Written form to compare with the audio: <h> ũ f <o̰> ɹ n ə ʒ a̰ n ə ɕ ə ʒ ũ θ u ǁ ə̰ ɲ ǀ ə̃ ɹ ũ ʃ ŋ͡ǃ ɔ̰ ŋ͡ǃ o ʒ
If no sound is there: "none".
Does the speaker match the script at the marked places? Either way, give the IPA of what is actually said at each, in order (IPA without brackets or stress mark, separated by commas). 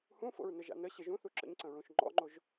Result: h, o̰